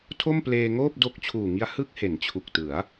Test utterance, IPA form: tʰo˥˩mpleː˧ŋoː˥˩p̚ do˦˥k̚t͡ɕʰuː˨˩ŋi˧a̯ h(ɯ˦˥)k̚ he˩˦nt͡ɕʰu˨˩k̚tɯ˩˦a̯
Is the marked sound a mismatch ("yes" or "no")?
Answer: no